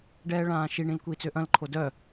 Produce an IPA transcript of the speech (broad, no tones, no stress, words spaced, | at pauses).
ɖɛːɭãːʃiɳĩl kʷiːt͡søʔɐ̃lǃʰo dœ